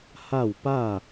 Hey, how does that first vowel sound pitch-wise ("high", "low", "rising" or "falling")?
falling